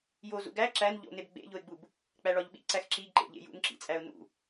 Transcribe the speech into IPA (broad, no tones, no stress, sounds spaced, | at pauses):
j o z ṵ ɡ æ ǁ æ n ʎ o̰ n e b ɡ͡b ḛ ʎ o ɪ̯ ɡ͡b u b | k͡p æ ɭ ɒ ʎ ɓ ḭ ǀ æ x ǁ i ɡ ǃ ḛ ʎ ḛ j ṵ n ǁ ḭ t͡sʼ æ ʊ̯ n ṵ